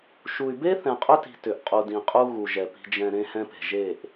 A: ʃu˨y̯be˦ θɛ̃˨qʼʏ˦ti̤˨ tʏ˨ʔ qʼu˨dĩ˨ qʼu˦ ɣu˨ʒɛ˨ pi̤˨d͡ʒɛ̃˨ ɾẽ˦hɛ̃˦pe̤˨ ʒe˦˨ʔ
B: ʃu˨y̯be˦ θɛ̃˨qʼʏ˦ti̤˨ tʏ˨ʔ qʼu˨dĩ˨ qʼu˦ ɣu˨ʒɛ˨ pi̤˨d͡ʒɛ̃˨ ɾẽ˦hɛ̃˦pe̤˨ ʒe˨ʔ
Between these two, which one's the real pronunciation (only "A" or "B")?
A